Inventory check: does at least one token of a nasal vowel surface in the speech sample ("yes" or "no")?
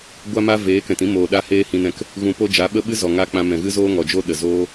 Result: yes